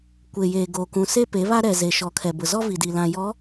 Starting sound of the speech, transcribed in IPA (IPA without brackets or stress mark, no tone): kʷ